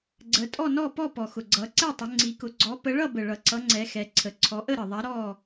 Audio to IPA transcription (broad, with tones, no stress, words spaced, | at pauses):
ɡ͡ǀə˨˦tʼɔ˥˨nɔ˥˨ pɔ˥˨pɔ˨˩xʊ˨˩ɡ͡ǀʌ˨˦ ǀɛ˥˨tˤʊ˨˦ ŋ͡ǀi˨˦kʊ˨˦ ɡ͡ǀɔ˨˦pə˨˦ɭʌ˥˨ bə˨˩ɭʌ˨˩ǀʌ˨˦ ŋ͡ǀɛ˨˦xɛ˨˦ǀʰə˨˩ ǀʰɔ˨˦ʔə˥˨ɾə˨˩ ðˤa˨˦ ɾɔ˥˨